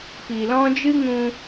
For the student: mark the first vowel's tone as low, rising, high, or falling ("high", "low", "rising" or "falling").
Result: low